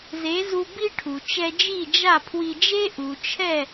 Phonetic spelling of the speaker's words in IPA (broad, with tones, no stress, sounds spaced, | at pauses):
z e˩˥ z u˧ b i˥ ʈʰ u˩ t͡ʃ ɛ˧ d͡ʒ i˥˩ d͡ʒ a˥˩ pʰ w i˧ d͡ʒ e˥ ʔ u˩ t͡ʃʰ ɛ˥˩